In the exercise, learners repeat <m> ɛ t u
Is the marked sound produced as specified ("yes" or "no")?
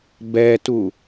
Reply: no